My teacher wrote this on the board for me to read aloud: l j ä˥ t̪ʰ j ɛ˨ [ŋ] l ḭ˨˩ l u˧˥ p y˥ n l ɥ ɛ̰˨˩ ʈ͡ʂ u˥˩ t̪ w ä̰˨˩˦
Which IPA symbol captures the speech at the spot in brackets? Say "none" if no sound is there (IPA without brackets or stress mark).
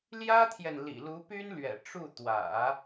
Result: n